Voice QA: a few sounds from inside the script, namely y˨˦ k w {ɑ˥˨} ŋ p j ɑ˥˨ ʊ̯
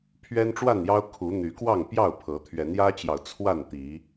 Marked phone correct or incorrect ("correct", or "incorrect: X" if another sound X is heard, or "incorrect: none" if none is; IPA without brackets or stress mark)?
correct